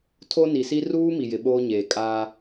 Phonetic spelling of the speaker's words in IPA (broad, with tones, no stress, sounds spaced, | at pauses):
tʰ o˦ n i˨ s i˦ r uː˦ m i˨ j ɪ˨ ɓ oː˦ ɲ eː˨ kʼ aː˦